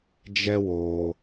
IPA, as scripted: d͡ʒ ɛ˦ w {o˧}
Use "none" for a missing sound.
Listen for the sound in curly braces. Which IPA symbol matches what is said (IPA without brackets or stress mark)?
oː˧